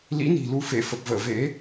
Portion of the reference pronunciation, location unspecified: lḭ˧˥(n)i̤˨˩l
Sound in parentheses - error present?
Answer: no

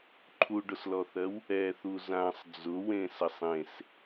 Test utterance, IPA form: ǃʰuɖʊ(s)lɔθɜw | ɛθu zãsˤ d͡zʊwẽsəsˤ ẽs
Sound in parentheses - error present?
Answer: no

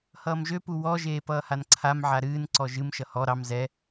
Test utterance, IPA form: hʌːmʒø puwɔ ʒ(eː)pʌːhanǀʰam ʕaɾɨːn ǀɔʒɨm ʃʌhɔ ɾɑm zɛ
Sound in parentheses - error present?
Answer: no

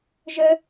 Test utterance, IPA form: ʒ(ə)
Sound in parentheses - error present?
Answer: no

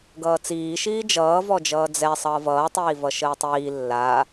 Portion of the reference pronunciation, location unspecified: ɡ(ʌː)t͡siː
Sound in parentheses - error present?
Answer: no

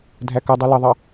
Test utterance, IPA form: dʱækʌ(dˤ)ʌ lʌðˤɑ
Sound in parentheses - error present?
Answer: no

